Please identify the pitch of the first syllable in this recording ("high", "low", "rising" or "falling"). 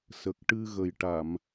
low